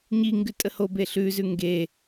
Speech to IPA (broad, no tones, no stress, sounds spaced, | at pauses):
ɲ i ŋ ɡ ʉ tʼ ə h o b e ɬ ʉ z ʉ ŋ ɡ e